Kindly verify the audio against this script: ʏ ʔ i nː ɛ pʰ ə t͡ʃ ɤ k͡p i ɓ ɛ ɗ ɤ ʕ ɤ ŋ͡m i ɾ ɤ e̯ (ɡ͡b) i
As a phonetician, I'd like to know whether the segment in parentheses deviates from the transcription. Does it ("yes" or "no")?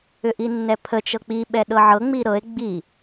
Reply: no